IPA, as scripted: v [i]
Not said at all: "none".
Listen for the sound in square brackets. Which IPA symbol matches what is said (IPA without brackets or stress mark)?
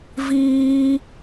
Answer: iː